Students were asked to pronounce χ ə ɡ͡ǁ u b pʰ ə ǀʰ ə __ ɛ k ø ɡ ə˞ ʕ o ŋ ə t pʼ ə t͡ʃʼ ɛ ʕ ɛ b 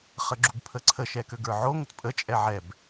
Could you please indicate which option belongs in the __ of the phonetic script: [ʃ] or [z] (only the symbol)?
ʃ